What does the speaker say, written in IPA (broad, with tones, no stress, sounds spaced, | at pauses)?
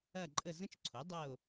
ɐ˦˨ ǃʼ ə˦˨ z ə̃˥ t͡ʃ ǀʰ o˩˥ dˤ ɤ˦˨ o̯